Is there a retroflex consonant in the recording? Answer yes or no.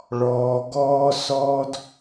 yes